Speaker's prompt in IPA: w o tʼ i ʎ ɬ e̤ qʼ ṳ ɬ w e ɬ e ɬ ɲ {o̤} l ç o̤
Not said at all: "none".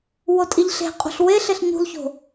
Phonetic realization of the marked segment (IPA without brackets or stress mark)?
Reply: ṳ